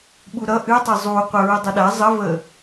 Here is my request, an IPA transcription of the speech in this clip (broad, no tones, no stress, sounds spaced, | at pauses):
ɓ u ɾ ʌ ʔ ɨ tˤ ə zˤ u qʷ ə ɹ ɨ dˤ ʌ ɗ a zˤ ə v ə